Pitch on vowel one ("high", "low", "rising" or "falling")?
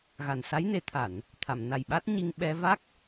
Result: low